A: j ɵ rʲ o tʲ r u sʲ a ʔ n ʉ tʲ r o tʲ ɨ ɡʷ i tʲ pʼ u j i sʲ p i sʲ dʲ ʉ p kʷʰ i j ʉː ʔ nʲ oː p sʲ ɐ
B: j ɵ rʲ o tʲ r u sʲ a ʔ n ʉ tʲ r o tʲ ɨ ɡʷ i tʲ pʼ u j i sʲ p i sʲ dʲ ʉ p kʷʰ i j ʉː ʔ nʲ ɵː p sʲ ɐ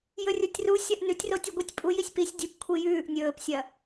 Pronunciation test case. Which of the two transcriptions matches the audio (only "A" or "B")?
B